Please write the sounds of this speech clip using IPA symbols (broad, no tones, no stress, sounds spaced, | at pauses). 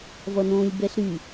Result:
v ʌ n õː lʲ b ɛ ɬ ɾ y